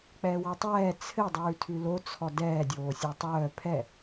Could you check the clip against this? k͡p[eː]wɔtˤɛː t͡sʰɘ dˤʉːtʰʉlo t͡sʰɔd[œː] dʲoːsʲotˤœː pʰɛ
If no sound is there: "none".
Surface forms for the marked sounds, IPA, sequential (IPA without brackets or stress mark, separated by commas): ɛː, ɛː